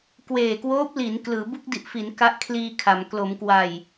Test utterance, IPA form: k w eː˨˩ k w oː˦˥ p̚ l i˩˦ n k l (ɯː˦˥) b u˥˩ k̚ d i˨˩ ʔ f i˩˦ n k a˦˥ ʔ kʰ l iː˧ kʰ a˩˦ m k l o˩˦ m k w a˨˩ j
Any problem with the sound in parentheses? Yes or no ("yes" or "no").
yes